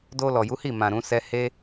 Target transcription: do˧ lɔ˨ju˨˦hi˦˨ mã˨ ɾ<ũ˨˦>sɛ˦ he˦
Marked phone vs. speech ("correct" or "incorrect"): correct